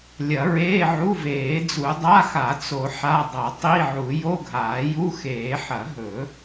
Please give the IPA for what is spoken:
lʲɐ˨˩˦ɹeː˧˥˧ ʕu˧˥˧veː˨˩˦d͡zu˨˩˦ dˤa˧˥˧xa˨˩˦t͡so˨˩˦ ħa˧˥˧ dˤɐ˨˩˦ tˤi˧˥˧ʕu˨˩˦ jo˧˥˧ɡʱaː˨˩˦ju˧˥˧xeː˨˩˦ ħɐ˨˩˦ɦɵ˨˩˦

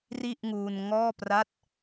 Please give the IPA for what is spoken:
ri˥˩ʔŋuː˧n ŋɔː˥˩pra˥˩t̚

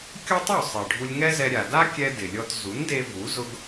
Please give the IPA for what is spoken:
kʲʊ˥tˤu˥˩ sˤe˩ɖʱu˧lʲŋɛ˥zɛ˧ ɾʲa˩da˥kʲɛ˧ dɪ˩lʲɔ˧t zu˩˥nde˧ vu˩˥ zʊ˧ɡ

